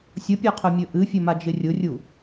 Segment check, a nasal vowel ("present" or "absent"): absent